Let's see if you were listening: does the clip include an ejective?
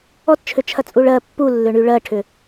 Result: yes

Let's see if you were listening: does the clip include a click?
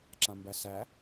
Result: yes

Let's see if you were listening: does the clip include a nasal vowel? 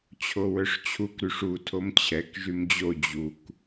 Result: no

